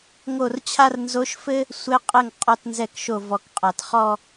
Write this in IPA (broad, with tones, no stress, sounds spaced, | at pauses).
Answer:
ŋ o˥˩ r t͡ɕʰ a˥ r n z o˧˥ ʃ f ɘ˥ | sʷ ɘ˧˥ qʼ ɘ˥˩ ŋ qʼ ɔ˥˧ t n z ɛ˥˩ k ʃ o˥˩ v ɔ˨ k qʼ a˨ t χ ɔ˥˧